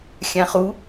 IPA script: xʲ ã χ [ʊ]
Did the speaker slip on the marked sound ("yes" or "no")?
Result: yes